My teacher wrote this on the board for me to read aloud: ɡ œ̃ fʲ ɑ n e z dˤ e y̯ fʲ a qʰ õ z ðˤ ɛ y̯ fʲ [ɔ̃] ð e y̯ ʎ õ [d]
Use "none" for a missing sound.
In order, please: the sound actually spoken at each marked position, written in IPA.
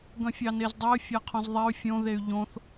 õ, θ

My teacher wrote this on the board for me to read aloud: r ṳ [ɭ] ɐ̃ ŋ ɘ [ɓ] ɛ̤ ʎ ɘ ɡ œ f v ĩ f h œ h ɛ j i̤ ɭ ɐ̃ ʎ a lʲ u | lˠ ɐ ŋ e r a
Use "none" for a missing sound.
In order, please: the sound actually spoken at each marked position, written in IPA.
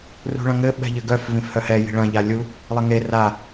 ɭ, ɓ

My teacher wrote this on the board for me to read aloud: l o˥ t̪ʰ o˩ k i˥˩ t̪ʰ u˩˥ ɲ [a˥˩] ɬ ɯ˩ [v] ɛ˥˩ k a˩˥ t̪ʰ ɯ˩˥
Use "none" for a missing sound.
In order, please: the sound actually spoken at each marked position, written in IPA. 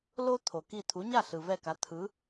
a˥˩, v

